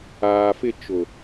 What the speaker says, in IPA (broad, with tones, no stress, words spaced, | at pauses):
aː˨fɪ˦˨t͡ʃʊ˨